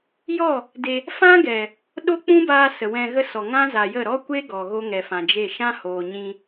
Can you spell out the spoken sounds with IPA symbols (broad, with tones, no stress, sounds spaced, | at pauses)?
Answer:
j ɔ˦˨ | d e˧ | f ã˦ ɡ ɛ˨ | ɗ o˦ k͡p ũ˦ b aː˧ s ə˨ w ɛ̃˧ ɣ ə˦ s ɔ˨ ŋ ã˦ z a˨ j ə˦˨ ɾ ɔ˦ kʷ e˦ ɡ ɔ˨ ɣ o˦ ŋ ɛ˨ f ã˨ d͡ʒ e˦˨ ʃ ã˦ h oː˨ ɲ ĩ˧